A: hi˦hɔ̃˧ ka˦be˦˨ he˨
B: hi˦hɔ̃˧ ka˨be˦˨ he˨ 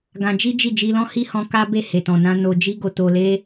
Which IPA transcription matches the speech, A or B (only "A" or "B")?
A